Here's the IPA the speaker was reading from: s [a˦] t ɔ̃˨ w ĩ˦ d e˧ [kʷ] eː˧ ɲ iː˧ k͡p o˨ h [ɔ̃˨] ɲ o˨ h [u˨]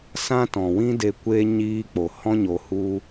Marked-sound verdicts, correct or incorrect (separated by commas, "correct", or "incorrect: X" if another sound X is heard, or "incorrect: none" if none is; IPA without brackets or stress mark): incorrect: ã˦, correct, incorrect: ɔ̃˧, incorrect: u˦